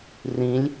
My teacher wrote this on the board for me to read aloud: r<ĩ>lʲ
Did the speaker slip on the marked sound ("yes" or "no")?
no